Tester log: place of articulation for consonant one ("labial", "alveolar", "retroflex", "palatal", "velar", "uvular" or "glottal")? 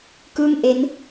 velar